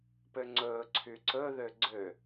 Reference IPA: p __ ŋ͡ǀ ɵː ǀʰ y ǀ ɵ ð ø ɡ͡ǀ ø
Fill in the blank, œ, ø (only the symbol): ø